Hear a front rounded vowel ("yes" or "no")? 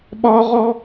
no